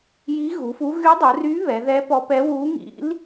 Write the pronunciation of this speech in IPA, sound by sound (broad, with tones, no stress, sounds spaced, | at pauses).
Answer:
j i˧˥ ɣ u˩˧ f u˧˥ ɣ y˧˥ dˤ u˩˧ r y˧˥ β ɛ˩˧ ð ɛ˧˥ p ɔ˧˥ p ɛ˧˥ w u˧˥ ŋ ḭ˧˥ l